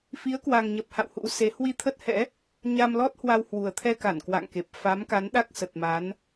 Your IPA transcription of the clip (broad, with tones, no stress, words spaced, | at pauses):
fi˨˦ə̯kwa˨˩ŋɲə˨˩p̚ ha̰˧˨w hṵ˧˥se˨˦ hwi˧t̪ʰə˦˥t̚hɛ̰˧˥ | ɲa˧mlɔ˦˥t̚ hwa˧whwu˨˩ə̯t̪ʰɛ˧ka˧˩n kwa̰˧˨ŋke˨˩p̚ fa˨˦mka˨˦nɗa˦˥k̚ sə˨˩t̚ma˨˦n